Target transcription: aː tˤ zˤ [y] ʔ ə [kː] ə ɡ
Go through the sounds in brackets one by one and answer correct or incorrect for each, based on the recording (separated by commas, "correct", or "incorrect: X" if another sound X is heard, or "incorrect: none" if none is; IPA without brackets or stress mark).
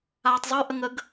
correct, incorrect: ŋ